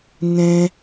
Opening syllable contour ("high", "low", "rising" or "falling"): high